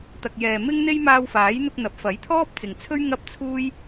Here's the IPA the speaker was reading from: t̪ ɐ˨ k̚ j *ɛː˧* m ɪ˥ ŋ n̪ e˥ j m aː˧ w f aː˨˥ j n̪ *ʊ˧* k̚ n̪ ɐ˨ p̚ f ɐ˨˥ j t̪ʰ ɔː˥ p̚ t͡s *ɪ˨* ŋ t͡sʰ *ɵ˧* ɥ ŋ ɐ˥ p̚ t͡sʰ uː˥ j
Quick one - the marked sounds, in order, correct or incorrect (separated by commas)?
incorrect, correct, correct, incorrect